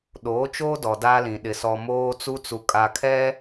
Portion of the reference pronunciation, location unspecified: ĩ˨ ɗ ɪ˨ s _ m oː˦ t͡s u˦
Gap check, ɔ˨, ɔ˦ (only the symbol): ɔ˨